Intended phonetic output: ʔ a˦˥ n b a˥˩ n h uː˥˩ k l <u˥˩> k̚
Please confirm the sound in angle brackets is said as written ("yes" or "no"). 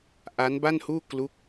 no